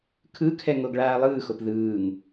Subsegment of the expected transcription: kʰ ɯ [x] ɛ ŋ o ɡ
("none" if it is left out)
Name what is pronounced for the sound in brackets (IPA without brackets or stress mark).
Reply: kʰ